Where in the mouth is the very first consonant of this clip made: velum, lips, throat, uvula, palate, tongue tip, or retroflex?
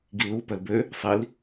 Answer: velum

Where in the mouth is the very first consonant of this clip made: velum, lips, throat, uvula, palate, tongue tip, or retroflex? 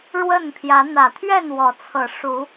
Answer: retroflex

